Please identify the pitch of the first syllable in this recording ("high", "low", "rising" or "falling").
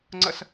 falling